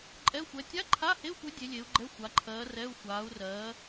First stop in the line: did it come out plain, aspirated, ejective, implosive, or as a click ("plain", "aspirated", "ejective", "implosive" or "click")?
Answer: click